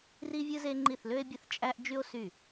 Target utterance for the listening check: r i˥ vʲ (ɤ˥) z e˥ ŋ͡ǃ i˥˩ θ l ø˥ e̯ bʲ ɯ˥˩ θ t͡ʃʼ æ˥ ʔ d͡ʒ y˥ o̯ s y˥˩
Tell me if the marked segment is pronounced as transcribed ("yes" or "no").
no